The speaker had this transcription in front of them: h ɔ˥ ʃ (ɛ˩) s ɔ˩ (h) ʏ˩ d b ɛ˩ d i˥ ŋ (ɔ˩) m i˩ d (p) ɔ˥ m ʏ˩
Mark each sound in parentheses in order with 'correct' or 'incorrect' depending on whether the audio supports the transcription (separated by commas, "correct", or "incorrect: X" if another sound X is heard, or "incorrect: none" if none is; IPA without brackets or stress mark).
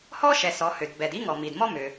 correct, correct, correct, incorrect: m